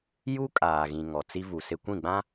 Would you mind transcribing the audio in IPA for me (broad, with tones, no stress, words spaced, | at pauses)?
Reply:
ju˦kʼaː˨ɣĩ˨ ŋɔ˨t͡si˦vu˨sɪ˦ kʷĩ˦˨ɡ͡bã˦